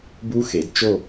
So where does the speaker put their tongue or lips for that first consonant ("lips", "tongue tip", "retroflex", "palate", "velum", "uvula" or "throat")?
lips